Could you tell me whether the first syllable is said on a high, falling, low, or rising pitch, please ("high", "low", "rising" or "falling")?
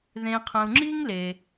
low